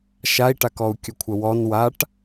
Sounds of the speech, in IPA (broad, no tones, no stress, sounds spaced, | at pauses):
ʃ a i̯ ʈ a k ɔ u̯ kʲ ə kʷʰ ə w ɔ n w a ʈ